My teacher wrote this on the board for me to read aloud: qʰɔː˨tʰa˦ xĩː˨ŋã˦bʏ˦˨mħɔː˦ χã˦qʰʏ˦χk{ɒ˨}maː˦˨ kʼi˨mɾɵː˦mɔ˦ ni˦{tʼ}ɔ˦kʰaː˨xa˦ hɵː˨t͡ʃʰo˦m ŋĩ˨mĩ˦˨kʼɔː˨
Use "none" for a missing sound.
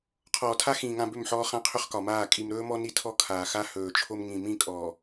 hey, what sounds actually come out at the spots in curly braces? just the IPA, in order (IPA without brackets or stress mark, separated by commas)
ɒ˨, tʰ